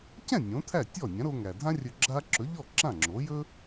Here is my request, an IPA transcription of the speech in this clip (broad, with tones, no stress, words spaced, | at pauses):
cɛ̃˥˩ nʲõ˩˥t̪ʰæ˥˩tʲɔ˥˩ nʲã˩˥ɾo˧ŋæ˩dʱã˥ rʲɵ˧ɡ͡ǁa˥ ǁɵ˩˥ʎɔ˥˩ ǁã˥˩ŋ͡ǁo˩˥ jɵ˥